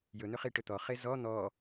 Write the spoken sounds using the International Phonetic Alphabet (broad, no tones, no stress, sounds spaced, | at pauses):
j ɵ n̪ ɵ χ i ʈ ɵ t̪ ɔ χ e z ɔ n̪ ɔ